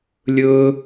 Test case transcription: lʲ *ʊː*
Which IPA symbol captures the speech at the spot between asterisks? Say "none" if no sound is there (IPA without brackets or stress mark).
ʊː